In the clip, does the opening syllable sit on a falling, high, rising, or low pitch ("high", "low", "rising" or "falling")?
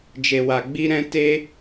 low